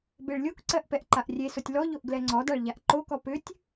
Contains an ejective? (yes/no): no